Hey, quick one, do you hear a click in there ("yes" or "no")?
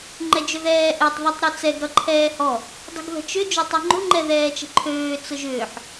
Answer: yes